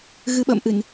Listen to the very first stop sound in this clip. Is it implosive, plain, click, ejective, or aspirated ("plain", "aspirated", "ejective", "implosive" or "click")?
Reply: implosive